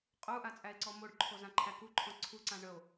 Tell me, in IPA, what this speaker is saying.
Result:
qʼ u ʔ a t͡sʼ æ e̯ ǀ ɔ m o ɖ ǃʰ o z ã ǃʰ æ k u ǃʰ ɔ̃ ǀʰ u ǀ ã ɳ ə o̯

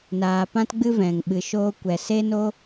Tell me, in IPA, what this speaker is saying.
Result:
n aː˨ p ã˦ t ɡ͡b ɨ˦ v ɛ̃˨ ŋ ɓ ɨ˨ ʃ oː˧ kʷ ɛ˨ s e˦ n o˦

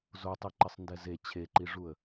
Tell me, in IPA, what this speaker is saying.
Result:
z o tˤ i ǃ ɪ sˤ n d ɛ z e t͡ɕʰ e ǃ i ʐ u ə̯

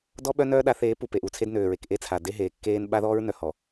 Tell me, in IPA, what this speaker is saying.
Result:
d ɔ˦ ɓ œ˦ n œː˦ ɗ a˨˦ θ eː˨˦ p u˨ p e˨ ʔ u˨ t͡sʰ e˦ d n øː˨ ɹ e˨ k ʔ e˦ t͡sʰ a˨ d e˦ ɦ eː˨ kː eː˦ n ɓ a˦ ð ɔː˦ ɹ n œ˨ h ɔ˨

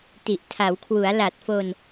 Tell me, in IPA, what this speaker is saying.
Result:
t i˨˩ ʔ tʰ a˩˦ w kʰ w u˩˦ a̯ l a˨˩ t̚ f o˧ n

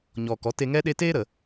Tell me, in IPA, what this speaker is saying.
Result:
ɲ ɔ˨ k ɔ˨˦ t e˧ ŋ ɛ˦ ɗ e˦ t eː˦ ɾ ə˨

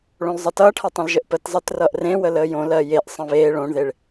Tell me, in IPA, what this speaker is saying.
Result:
ɭ õ l zˤ ʌ t ʌː ʈʰ ɜ tˤ ə̃ l ʒ ə ʔ p ə t zˤ əː t r ʌ ʔ r ẽ w ə l əː j õ l ɜ j e ʔ sˤ ə̃ β eː ɭ õ ɳ ð e ɭ

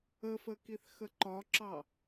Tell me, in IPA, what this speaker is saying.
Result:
ə f ə k i θ x ə ǃ ɒ ǁ ɑ

